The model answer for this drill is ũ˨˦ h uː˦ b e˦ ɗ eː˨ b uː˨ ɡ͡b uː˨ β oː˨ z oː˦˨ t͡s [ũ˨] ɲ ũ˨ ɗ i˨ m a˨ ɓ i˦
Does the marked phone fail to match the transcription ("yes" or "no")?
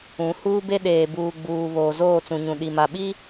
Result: no